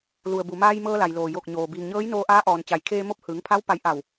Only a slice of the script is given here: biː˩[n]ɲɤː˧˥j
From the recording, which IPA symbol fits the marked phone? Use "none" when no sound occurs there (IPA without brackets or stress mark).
ŋ